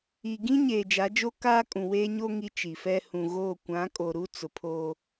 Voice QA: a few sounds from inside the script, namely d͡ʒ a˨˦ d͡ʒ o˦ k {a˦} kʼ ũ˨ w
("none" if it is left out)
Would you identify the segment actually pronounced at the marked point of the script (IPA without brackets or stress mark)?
aː˦